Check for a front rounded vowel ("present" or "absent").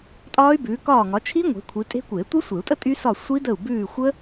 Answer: present